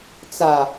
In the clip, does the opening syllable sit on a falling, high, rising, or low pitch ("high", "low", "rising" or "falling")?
low